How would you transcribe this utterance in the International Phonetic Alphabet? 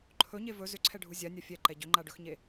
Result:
ǃʰ ɵ ɲ e v ɵ z ʏ ǀʰ ɛ ɖʱ u zʲ a nʲ a fʲ ɛ ǃ ɛ ɟ ʏ ŋ͡ǃ a ɖ ɵ x ɲ e

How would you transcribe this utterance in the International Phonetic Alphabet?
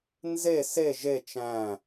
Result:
n z e s e ʒ e t͡ʃ æ̃

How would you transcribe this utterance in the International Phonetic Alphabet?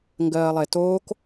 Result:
ŋ ɡ ɜː lˠ e t oː k

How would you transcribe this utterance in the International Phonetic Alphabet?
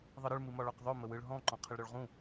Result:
ðˤ ɯ ɾ ɯ ɭ m ɨ m ɒ ɭ ɒ q ðˤ ø m ə w ɯ ɭ ɦ ɔ̃ ǃ ɔ̃ qʰ ə ɭ ɾ ø ɭ ʁ ũ

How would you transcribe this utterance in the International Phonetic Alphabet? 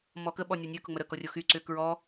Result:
m ɔ k ə ɓ ɔ nʲ ɔ nʲ ø k ʊ ŋ͡m ə ɾ ə k ɔ rʲ o x y ǀ ʏ k ɹ ɔ

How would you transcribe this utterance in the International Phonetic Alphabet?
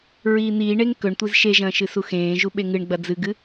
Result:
ɹ iː n̪ iː ɳ e ŋ k ɵ ɳ tʷ i z ʃ e ʒ ɐ̃ː ʃ ɨ s u x ẽː ʒ u ɓ e ŋ ɨ ɳ ɡ͡b ɐ d͡z ɨ ɡ ɨ

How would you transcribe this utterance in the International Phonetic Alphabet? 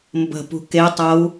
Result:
m b ə̤ p ṳ k e tˤ ɤ u̯

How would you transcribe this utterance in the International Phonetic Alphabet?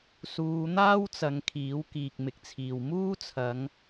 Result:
s uː˨˧ n̪ aː˥ w t͡s ɐ˨ ŋ kʰ iː˨˥ w k iː˨ k̚ m ɪ˨ k̚ t͡sʰ iː˨ w m uː˥ t͡sʰ ɐ˨˧ ŋ

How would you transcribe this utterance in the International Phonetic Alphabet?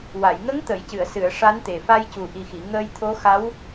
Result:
w a˨˩˨ j ŋ ə˧˥ ŋ t̪ ə˨˩˨ j c ɨ˨˩˨ ə̯ s ɨ˨˩˨ ə̯ ʂ a˧˥ n t̪ e˨˩ f a˧ j c u˨˩ ʔ i˨˩ x i˨˩˨ ŋ ə˧ j t̪ʰ o˧˥ x a˧˥ w

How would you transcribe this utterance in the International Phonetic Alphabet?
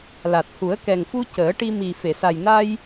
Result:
l a˨˩ t̚ h u˨˩˦ ə̯ k ɛ˨˩ ŋ f u˧ c əː˨˩˦ ʈ i˧ m i˨˩ f e˨˩˨ s a˨˩ j n a˧ j

